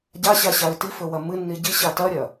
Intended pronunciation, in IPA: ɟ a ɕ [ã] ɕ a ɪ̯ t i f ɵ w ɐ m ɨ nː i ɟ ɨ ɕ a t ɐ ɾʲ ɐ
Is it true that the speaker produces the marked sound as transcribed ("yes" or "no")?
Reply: no